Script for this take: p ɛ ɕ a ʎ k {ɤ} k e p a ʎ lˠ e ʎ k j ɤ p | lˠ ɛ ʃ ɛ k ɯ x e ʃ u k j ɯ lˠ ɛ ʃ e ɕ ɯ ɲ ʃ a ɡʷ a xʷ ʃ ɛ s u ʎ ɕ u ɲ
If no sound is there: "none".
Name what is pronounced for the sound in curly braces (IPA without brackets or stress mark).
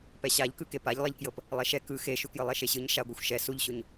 ɯ